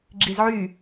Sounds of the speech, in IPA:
ɡ͡ǁizʕy

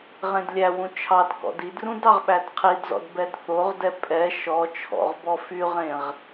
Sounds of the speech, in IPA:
ʁẽdlʲæwũ t͡ʃʰɑdkɔ̰d idrũd ɑʁɓædqʰidzɔ̰d bɛdθoʁdɛ pʼɛ ʃɔ t͡ʃʰɔ̰ʁbɔ fyʁẽʁ

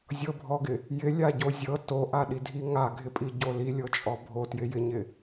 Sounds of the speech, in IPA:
zʲɤbʱɔɡɪ | jɪlʲaɟo zʲɤ toʔaɗidʱi ŋaɡʱɪpʼiɟo lilʲɤt͡ʃʼɔ bʱotjɪjɪɲɪ

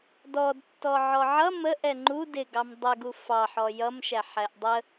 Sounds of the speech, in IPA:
dɔdtːɔ ʕɔʕʌ mə ʔɛŋ͡ǃu dɪɡɑm dˤə ɡufɑħɔ jʌmʃæ ħæʔdˤə

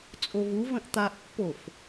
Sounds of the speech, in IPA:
t͡sʼovuvə̃ʔ t̪aʔpːof

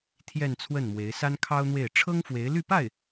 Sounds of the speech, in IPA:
t̪ʰjɛ˥˧nt͡sʰwə˥˩nmwe˧˥ɪ̯ sa˥nkʰɑ˥ʊ̯n̪we˥˩ɪ̯ ʈ͡ʂʰɤ˥ŋfwe˧˥ɪ̯ly˥˧pa˥˩ɪ̯

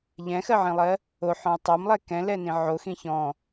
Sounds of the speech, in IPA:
ʎɛ̃xɜʕĩlˠɜ | oħɔ̃y̯ tˤɜmlˠɛ kɛ̃lɛnĩ ʕoxĩ çɔ̃

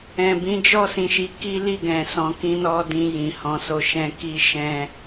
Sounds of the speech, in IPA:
ɛ̃˨ bĩ˨˦d͡ʒɔ˦˨sĩ˨ʃi˨˦ ki˦li˦˨ɡɛ̃˨ sɔ̃˨kĩ˧nɔ˧ dĩ˧ jĩ˨hɔ̃˧so˧ ʃɛ̃˧ ki˧ ʃɛ̃˧

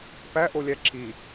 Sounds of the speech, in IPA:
pæʔolʲæ ǁi

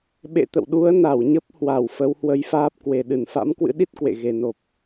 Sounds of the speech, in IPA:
ɓḛ˧˨t̪ə̰˧˨wɗu˨˦ə̯ na˧˩wɲə˦˥p̚ hwa˧˩wfə˨˦w hwə˨˦jfaː˦˥p̚kwe˨˩ ɗɨ˧˩nfa̰˧˥mkwɨ̰˧˥ɗi˦˥t̚ kwḛ˧˨ɣe˨˩no˨˩p̚

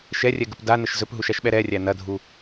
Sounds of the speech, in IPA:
ʃɛrʲɛɡəp danəʃ zɵpɦuʃaʃɓɛ ɾɛrʲæ nɐdʱu

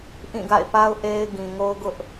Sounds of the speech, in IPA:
ʔĩ˦˨ɡa̰˦˨ɪ̯pa˦ʊ̯ ʔe˦ɪ̯ ɡĩ˨ŋo˦ʊ̯ɡʊ˦ʔ

